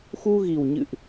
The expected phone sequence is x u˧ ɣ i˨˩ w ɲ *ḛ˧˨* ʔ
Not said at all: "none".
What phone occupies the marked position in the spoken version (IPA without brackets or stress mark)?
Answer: ɨ̰˧˨